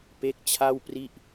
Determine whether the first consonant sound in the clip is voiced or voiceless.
voiceless